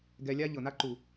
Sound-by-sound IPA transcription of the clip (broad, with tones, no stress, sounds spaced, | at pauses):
ɡ ɛ˧ lʲ a˦ ʎ ɤ˨ n a˦ ǃ u˨